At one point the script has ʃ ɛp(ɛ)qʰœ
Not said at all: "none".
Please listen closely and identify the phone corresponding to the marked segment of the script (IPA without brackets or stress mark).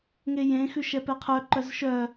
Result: ɛ